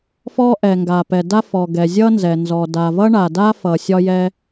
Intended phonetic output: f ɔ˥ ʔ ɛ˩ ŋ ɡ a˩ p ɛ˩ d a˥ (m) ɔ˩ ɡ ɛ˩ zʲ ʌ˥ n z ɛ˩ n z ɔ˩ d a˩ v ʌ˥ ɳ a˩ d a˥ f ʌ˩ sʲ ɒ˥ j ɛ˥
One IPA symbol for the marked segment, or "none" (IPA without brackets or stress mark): f